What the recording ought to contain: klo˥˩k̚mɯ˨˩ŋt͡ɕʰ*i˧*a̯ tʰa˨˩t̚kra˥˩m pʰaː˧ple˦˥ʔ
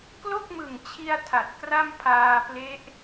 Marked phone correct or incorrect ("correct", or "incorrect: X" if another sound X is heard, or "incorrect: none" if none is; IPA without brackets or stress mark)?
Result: correct